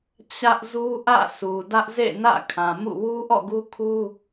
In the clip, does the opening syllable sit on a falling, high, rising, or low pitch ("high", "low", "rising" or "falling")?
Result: high